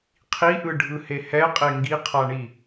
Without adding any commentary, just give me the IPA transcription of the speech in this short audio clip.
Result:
qʰ i ʔ ɯ ɖʱ ɯ h e h ɛ qʼ e ŋ ɡ i qʰ a ɳ i

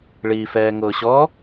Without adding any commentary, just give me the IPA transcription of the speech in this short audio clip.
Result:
ɭ iː f ɛː ŋ ʊː ɕ ɔ

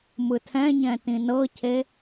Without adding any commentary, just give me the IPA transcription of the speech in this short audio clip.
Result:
m ɯ tʰ ɛ̃ ɲ ɛ̃ t ĩ n ɤ cʰ e

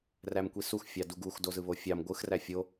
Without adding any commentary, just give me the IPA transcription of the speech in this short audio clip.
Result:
r æ m kʷ i s u x fʲ ɑ d u ɡ u x d o z ɯ β o fʲ ɑ m ɡʷ ɯ x r æ fʲ o

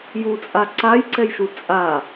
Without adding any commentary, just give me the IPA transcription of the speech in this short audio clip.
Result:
j u t͡sʼ a ǀ a j ǀ ɛ j ʃ u t͡sʼ a

